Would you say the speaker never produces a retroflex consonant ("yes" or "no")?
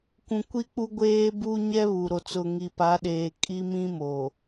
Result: yes